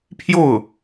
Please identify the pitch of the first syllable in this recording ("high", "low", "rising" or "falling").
falling